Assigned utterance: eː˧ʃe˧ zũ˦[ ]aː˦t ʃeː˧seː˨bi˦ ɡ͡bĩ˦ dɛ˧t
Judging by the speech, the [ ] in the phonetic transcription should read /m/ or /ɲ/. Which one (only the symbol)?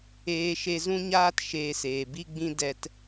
ɲ